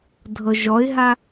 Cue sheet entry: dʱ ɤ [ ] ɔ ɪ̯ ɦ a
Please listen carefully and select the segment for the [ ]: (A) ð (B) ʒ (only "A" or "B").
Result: B